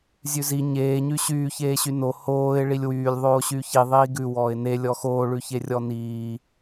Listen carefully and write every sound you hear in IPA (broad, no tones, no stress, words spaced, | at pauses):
zʲʉzi ɲeː ɲyɕyː çeːɕyno hoːɪ̯ ɭilʲwyːlʲ ðˤoːɕyːçi ðˤiːɡʉ wɔːɪ̯ne lʲɔxoː ɭʉçerʲɔniː